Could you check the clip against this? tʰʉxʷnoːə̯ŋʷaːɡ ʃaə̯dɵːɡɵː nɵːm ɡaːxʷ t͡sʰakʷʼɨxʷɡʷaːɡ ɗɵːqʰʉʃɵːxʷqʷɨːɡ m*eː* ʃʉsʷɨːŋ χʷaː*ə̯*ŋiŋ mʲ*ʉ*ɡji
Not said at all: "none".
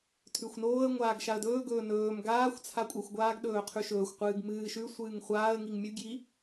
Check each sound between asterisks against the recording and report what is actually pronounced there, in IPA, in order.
ɨː, ə̯, ʉ

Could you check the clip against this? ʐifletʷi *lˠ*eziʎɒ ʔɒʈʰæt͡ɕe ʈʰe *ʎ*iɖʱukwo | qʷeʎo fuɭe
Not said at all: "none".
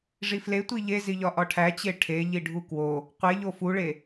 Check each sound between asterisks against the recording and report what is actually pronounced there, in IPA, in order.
ʎ, ʎ

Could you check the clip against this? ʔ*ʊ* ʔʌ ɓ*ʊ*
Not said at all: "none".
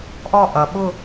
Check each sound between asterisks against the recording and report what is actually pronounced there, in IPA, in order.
ɔ, ʊ

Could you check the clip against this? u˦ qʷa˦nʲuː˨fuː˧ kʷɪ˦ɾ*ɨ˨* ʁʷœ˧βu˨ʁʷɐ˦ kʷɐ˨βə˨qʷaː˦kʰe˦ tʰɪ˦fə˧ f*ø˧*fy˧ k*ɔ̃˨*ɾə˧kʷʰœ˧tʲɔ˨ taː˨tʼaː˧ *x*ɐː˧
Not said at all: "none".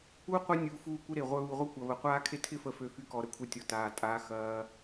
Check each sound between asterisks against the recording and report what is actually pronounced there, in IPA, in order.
e˨, ø˧, ɔ˨, x

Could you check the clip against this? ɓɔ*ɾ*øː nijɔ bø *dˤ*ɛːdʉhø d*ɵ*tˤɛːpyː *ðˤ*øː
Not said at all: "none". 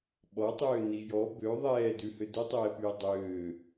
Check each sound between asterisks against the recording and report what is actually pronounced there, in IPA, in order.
tˤ, ðˤ, ɵ, dˤ

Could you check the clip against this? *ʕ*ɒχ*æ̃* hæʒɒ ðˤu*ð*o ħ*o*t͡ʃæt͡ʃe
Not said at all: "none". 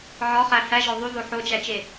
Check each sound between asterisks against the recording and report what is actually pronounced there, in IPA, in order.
ʕ, æ, ð, o

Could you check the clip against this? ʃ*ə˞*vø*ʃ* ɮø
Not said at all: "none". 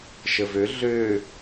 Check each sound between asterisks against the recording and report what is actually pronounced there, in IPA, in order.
ə, none

